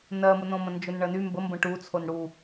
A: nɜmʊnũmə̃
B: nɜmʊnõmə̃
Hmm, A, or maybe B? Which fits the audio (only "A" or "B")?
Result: B